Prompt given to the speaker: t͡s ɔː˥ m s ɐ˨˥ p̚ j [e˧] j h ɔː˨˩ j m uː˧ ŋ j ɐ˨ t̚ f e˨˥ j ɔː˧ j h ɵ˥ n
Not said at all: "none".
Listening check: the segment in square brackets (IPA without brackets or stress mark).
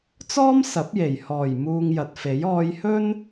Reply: e˨˩